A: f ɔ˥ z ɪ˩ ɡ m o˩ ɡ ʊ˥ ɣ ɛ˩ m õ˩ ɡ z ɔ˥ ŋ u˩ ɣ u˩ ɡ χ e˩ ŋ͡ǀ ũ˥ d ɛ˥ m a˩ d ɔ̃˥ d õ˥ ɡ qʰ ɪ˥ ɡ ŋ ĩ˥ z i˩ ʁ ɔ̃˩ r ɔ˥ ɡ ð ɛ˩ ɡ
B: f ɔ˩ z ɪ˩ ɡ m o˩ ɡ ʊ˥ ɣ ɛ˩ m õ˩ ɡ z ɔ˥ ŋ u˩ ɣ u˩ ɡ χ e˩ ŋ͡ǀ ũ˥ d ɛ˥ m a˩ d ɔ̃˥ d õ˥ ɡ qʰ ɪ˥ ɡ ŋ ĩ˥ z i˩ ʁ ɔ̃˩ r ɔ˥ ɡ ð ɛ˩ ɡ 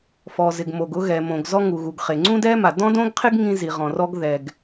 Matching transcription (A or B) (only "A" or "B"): B